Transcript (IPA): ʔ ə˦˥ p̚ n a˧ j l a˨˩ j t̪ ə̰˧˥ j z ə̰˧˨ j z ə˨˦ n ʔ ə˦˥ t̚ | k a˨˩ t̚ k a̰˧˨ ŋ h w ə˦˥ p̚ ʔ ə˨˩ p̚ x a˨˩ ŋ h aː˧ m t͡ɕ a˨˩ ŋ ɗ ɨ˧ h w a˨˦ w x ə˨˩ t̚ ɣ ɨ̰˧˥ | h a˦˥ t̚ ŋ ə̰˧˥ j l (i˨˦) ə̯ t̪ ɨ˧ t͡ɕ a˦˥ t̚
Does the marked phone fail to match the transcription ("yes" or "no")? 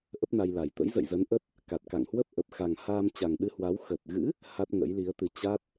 no